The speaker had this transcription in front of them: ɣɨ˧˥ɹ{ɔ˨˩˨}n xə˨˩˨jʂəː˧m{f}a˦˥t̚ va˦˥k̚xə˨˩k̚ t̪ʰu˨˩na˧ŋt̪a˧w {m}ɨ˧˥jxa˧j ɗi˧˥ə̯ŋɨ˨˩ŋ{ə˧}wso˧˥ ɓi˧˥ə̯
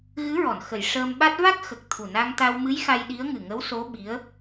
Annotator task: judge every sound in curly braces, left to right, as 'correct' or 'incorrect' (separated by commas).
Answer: correct, incorrect, correct, incorrect